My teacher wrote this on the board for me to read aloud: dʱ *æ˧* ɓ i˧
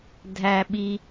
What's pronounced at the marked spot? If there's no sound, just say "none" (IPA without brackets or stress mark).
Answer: æ˧